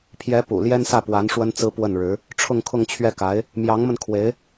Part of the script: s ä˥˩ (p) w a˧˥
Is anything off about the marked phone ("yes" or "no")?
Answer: no